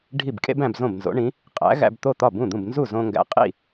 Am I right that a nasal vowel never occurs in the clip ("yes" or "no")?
no